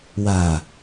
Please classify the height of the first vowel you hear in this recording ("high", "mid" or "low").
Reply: low